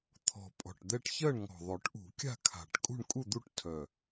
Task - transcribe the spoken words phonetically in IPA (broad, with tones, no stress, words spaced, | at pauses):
t̪ʰɔ̤˨˩pʼɔ̤˨˩ʈd̪ɛ˥˨ʈ çɜ˥˨ɳŋɔ̤˨˩ðˤœ˨˩˦ʈʔṳ˨˩˦ kʲa̤˥˨kʰa̤˨˩ʈ kʼṳ˥˨ɳkʼu˥˨d̪u˥˨ʈtʰœ˨˩